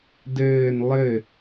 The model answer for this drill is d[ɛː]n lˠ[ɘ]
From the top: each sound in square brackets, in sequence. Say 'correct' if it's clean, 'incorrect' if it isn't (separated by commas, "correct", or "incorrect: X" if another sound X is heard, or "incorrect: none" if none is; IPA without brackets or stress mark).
incorrect: ɘː, correct